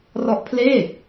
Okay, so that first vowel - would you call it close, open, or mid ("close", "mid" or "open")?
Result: mid